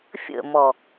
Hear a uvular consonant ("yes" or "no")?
no